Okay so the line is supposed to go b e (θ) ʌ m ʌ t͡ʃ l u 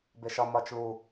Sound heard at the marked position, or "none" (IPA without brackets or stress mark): ʃ